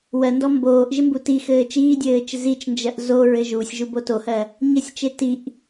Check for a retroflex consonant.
absent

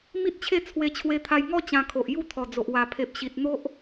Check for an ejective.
absent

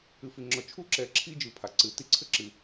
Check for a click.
present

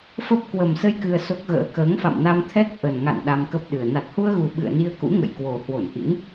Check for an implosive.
present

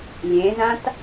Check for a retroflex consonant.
absent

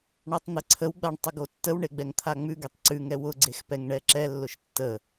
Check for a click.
present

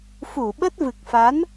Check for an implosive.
present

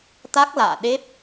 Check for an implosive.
present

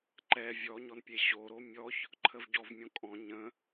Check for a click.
present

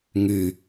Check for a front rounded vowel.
present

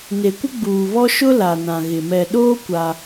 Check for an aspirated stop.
absent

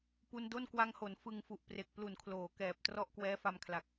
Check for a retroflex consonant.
absent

